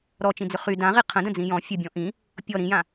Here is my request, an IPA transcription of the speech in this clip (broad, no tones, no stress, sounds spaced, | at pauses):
ɾ ɔ t͡ʃ ĩ d͡z ʏ χ y d ã ʁ i qʰ ə̃ d ə̃ d͡z ĩ j ɔ̃ fʲ ə bʲ ɔ̃ ʔ ĩ | pʲ ɔ ɾ ĩ j ã